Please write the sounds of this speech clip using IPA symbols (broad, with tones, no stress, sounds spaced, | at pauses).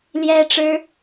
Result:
l j ɛ˥ ʈ͡ʂ ɻ̩˥